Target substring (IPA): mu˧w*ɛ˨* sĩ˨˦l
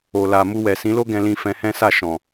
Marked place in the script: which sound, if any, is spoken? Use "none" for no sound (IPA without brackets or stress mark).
ɛ˨